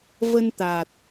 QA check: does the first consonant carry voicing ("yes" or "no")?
yes